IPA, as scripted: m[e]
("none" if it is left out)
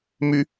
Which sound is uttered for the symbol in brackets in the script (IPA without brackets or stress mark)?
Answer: y